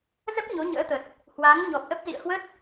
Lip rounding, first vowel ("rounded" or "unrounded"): unrounded